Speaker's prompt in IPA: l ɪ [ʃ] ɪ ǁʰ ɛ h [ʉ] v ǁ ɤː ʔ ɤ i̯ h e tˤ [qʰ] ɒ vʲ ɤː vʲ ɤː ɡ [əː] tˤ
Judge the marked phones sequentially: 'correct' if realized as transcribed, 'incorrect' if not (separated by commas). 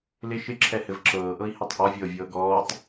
correct, incorrect, incorrect, incorrect